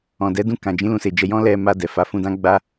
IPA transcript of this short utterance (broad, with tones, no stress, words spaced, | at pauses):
ɔ̃˨dɛ˨˦dũ˧kã˨ d͡ʒĩ˨˦lũ˧se˨d͡ʒɛ˧ jɔ̃˦ lɛ˧ma˧ dɛ˨fa˨˦ fũ˧dã˦ ɡ͡ba˦